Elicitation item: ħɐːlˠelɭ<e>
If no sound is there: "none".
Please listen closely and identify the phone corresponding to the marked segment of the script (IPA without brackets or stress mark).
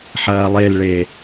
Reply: e